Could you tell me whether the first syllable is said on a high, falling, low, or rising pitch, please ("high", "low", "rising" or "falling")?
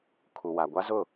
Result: low